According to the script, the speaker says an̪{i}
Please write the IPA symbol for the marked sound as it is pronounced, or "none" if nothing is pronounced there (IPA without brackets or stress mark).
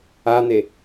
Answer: e